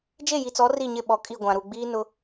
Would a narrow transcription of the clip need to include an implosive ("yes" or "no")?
yes